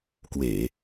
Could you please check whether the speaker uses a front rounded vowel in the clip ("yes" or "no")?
no